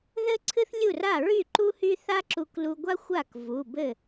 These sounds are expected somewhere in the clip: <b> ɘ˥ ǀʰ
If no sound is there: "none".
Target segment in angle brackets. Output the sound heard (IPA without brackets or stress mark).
ð